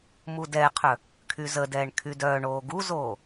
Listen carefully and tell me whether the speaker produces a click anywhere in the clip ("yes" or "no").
no